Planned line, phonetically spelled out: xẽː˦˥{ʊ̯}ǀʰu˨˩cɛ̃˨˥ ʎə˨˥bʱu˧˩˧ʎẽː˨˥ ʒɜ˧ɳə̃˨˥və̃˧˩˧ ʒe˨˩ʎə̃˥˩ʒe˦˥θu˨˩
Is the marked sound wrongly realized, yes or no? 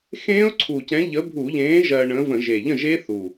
no